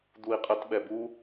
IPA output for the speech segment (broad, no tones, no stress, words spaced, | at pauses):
d̪ui̯qʼət ɓɛbu